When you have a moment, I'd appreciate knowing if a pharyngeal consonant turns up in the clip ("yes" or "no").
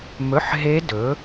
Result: yes